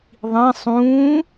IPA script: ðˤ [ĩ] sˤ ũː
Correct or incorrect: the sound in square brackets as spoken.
correct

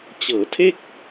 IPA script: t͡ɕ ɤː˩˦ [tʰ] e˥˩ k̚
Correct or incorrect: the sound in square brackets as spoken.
correct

